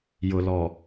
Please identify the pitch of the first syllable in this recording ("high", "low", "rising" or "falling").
low